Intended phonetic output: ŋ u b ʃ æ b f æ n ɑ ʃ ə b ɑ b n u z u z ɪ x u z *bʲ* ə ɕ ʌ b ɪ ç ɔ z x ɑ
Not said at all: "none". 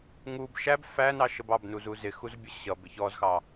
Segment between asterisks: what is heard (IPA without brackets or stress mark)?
bʲ